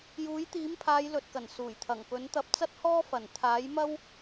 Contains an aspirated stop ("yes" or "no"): yes